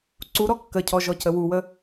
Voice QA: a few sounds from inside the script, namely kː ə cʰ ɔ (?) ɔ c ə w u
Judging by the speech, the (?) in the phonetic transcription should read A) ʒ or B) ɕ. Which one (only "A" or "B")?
A